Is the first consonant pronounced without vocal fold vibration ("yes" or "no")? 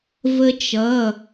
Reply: no